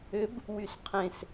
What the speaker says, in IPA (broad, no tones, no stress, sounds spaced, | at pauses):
ʏ b | w y s qʰ ẽ s